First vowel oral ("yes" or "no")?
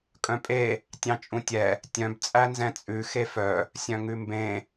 no